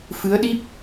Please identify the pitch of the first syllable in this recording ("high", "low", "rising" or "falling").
rising